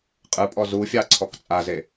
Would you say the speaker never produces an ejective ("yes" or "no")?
no